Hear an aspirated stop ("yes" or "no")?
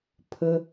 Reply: yes